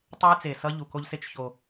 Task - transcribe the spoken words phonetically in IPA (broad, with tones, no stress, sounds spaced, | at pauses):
tˤ e˦ j t͡s e˨ s ʌ˦ ʎ u˨ k o˦ ʎ s e˦ t͡ʃ ç o˦